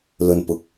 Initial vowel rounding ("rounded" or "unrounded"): rounded